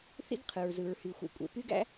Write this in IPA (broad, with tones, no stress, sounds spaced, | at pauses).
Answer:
θ ḭ˥ ɡ qʰ ɯ˩ ɹ z ɯ˩ ɹ h y˩ xʷ ḛ˩ kʷʼ ḛ˩ p y˥ ɡ æ̰˥